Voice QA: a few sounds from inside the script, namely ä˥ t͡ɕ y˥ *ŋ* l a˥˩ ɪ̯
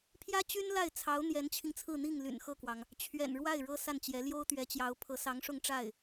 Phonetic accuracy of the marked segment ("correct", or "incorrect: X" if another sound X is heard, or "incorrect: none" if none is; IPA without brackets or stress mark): incorrect: n